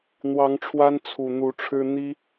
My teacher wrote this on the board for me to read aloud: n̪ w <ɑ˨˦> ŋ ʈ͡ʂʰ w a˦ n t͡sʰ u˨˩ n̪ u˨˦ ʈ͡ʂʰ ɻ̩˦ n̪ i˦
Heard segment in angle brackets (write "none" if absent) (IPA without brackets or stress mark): ɑ˨˦